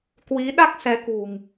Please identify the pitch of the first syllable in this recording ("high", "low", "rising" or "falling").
rising